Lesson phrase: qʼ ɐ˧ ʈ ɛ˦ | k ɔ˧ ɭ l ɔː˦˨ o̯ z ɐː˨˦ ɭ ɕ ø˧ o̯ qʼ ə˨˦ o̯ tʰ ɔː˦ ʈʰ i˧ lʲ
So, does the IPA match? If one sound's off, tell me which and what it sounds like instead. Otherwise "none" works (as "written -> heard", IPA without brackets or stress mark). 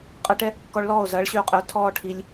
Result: none